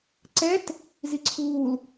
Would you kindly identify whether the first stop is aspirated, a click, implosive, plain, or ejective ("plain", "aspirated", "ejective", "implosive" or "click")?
click